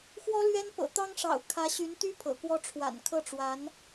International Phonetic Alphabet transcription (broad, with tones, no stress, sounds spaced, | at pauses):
x w ɔ˥ l ɥ ɛ˥ n p ɤ̰˨˩ t̪ ɑ˥ ŋ ʂ ɑ̰˨˩ ʊ̯ kʰ ä˧˥ ɕ y˧˥ n t̪ y˥ pʰ ɤ̰˨˩ k w ɔ˥ ʈ͡ʂʰ w a̰˨˩ n kʰ ɤ˥˩ ʈ͡ʂ w a˧˥ n